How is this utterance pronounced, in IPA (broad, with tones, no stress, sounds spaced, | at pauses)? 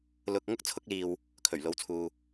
l ʊ˧ k̚ ŋ ʊ˥ k̚ t͡sʰ ʊ˧ k̚ l iː˨ w | kʰ ɵ˨˩ ɥ l o˨˧ w t͡sʰ uː˨